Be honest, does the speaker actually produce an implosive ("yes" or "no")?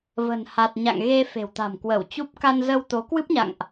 no